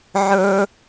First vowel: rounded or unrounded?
unrounded